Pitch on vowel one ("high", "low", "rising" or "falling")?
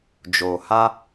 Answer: low